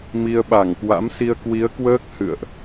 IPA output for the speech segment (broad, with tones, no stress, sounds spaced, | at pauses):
m i˧ ə̯ ɓ a˧˩ ŋ k w a̰˧˥ m s i˧ ə̯ k w i˨˦ ə̯ k w əː˦˥ k̚ h ɨ̰˧˨ ə̯ ʔ